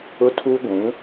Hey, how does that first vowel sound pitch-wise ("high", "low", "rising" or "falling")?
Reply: high